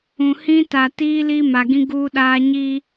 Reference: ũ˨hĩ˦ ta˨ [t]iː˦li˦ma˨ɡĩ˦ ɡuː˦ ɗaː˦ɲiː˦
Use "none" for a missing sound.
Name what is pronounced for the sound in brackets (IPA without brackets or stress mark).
t